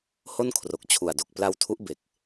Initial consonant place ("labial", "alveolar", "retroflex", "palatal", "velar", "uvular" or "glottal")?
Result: glottal